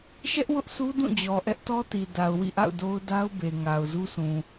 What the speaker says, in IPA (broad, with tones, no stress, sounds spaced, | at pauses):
ʃ ɛ˦ ʔ w ʊ˦ ʔ s u˦ d ũ˦˨ d͡ʑ ɔ˨ ʔ ɛ˦ ʔ t ɔ˦ t i˨ d a˨ ʊ̯ w ḭ˦˨ ʔ a̰˦˨ ʊ̯ d o˦ ʊ̯ d a˦ ʊ̯ b e˨ ŋ a˨ ʊ̯ z u˦ sʰ ũ˨